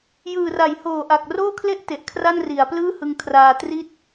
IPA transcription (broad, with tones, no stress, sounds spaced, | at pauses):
j ɯː˨˩ r a˩˦ j h oː˨˩ ʔ a˨˩ k̚ r oː˥˩ kʰ l e˥˩ ʔ t e˨˩ ʔ kʰ r a˥˩ n r i˩˦ a̯ p l ɯː˥˩ h ɯ˧ ŋ kʰ r aː˧ t r i˦˥ t̚